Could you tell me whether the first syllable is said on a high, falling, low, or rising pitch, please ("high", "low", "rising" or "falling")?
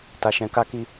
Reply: low